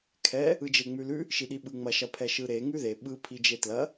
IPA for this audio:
kʰ ɛ | ɯ d͡ʒ e ŋ͡m ʉ l ʉ | ʃ i ɗ i ɓ ɯ ŋ͡m ɐ ʃ ɐ pʰ ɛ ʃ ɯ ɾ e ŋ ʉ ð e ɓ ɯ pʰ i d͡ʒ e t l ɐ

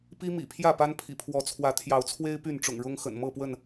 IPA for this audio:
p i˦ m ḭ˨˩ pʰ j ä˥˨ p a˦ n pʰ ḭ˨˩ pʰ w ɔ˨˦ t͡sʰ w ä˨˦ t̪ʰ j ɑ˨˦ ʊ̯ t͡sʰ w e˦ ɪ̯ p y˥˨ n ʈ͡ʂ ʊ̰˨˩ ŋ ɻ ʊ˦ ŋ x ə̰˨˩ n m ɤ˥˨ p w ə˥˨ n

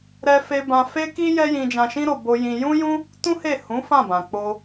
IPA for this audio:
ɾ ɛ˧ f e˧ b ã˧ f e˦ k i˦ j ɛ˦ j ĩ˧ d͡ʒ ã˧ ʃ ĩ˦ ɾ o˧ b o˧ j ĩ˧ j ũ˦ j ũ˦ | t ũ˦ h e˦˨ h ũ˨˦ f ã˦˨ b ã˨ k͡p o˧

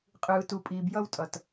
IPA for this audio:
qʼ ɯː˩ t u˩ pʼ iː˩ b j ʌ˧ w tʼ ʌ˩ t

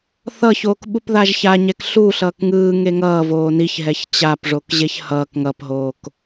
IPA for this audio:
θ ʌ ç oː k ɓ u p ð a ʒ ç a ɲ ɛ k ɬ u ɬ ʌː k ŋ ɯː ŋ e ŋ ʌː v oː n i ç ɦ ɛ ç t͡ɕ a p ʐ o k ʑ e ç h ʌː k ŋ ʌ p ɦ oː k

